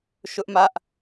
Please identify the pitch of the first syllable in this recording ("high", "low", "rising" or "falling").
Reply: high